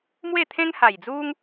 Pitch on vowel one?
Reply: falling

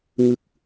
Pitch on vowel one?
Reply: low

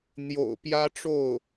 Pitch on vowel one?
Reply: low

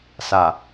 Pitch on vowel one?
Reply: low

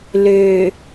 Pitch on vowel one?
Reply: low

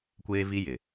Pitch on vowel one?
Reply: high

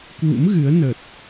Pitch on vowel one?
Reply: rising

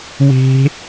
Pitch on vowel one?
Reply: high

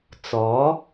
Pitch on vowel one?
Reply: rising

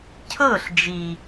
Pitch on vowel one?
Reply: falling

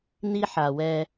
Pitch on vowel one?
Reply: high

